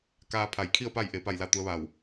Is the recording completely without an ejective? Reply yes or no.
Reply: yes